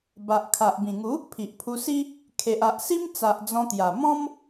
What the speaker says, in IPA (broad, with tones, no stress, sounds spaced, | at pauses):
b a˨ ʔ kʰ a˨ ʔ b ĩ˨˩ ŋ u˨˦ | pʰ i˨ ʔ pʰ u˧ s i˦ | kʰ e˨ ʔ a˨ ʔ s i˦ m t͡s a˨ ʔ d͡z ɔ̃˧ t̪ j a˨˩ m ɔ̃˦ m